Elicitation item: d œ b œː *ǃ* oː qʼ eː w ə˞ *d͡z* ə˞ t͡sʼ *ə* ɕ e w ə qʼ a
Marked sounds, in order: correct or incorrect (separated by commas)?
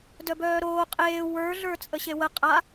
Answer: incorrect, incorrect, correct